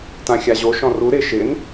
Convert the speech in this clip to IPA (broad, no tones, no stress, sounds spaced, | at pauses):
t ã xʲ a ʑ o ʃ ɔ̃ r u ɾ ɪ ʃ ɪ n